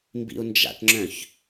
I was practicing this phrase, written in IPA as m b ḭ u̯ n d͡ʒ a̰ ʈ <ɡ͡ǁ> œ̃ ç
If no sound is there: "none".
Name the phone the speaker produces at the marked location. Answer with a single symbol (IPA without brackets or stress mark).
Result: ŋ͡ǁ